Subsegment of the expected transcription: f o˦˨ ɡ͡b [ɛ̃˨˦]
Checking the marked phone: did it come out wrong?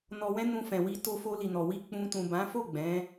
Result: no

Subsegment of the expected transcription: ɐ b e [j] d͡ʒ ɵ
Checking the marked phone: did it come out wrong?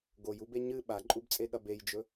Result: no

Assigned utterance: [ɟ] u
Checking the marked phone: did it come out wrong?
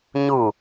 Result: yes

